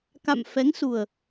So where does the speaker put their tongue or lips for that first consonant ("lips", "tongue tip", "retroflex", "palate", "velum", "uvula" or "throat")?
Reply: velum